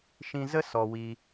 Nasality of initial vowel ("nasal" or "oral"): nasal